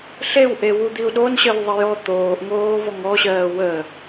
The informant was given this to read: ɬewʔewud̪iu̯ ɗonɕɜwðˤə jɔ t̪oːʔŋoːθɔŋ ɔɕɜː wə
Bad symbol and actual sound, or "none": θ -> v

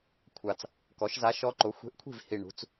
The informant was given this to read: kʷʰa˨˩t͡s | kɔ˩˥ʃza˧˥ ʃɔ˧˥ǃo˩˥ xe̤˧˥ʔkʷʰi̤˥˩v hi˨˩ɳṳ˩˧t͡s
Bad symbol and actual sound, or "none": x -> xʷ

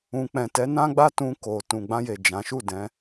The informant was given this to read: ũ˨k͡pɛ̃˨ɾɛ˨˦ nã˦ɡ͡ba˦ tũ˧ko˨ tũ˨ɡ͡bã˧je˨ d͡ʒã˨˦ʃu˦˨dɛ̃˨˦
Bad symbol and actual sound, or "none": ɾ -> t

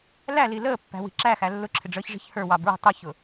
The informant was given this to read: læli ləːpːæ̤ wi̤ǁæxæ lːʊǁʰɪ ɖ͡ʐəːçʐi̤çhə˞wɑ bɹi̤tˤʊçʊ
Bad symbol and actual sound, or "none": none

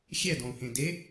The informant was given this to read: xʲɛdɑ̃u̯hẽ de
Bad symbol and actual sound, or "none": ɑ̃ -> ɔ̃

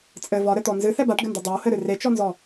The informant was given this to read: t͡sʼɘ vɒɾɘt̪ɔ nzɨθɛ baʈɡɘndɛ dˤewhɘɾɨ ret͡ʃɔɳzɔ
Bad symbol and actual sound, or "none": ɳ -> n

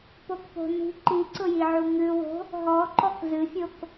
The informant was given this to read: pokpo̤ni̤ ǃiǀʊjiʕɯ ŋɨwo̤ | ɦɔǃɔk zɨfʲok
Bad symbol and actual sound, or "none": ɯ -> u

